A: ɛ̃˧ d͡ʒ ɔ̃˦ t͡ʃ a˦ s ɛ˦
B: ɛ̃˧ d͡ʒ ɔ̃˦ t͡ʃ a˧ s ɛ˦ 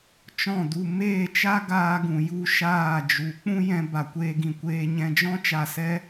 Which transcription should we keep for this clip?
B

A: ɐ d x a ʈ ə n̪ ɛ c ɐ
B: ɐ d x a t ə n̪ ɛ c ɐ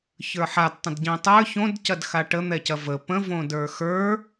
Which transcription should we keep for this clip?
A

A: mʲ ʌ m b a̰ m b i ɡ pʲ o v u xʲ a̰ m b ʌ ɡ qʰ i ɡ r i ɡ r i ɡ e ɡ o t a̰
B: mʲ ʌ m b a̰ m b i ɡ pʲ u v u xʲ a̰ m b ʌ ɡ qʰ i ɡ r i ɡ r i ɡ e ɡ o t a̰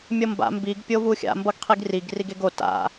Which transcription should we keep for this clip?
A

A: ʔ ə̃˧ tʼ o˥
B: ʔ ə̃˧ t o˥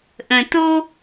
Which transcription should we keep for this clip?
B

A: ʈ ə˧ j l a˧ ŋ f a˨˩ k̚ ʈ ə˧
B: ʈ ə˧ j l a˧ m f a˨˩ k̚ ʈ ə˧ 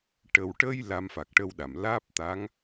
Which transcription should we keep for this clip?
B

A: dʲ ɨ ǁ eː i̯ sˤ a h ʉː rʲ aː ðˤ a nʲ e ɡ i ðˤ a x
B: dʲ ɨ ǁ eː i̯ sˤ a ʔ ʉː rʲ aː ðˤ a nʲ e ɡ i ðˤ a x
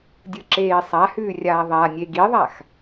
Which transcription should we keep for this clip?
A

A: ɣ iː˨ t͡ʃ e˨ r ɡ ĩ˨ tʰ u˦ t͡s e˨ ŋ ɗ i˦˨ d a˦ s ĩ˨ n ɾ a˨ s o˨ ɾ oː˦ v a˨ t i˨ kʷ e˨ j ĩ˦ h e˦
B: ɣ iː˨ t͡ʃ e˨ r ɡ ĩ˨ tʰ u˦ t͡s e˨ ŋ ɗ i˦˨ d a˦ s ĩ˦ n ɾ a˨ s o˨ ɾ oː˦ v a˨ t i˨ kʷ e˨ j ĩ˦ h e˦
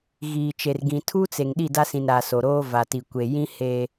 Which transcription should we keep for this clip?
A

